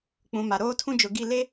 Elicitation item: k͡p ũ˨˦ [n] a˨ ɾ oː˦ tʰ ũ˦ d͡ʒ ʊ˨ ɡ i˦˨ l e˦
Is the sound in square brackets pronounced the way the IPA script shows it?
no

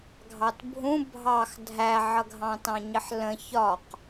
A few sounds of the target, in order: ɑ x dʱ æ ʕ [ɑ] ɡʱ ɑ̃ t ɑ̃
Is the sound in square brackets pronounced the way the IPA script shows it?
no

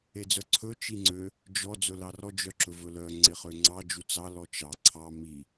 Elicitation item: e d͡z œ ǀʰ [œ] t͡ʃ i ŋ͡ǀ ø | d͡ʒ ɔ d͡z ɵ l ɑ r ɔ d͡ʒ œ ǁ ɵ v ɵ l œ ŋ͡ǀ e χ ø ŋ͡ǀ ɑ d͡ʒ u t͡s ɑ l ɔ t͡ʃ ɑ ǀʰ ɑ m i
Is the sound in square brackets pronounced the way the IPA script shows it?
no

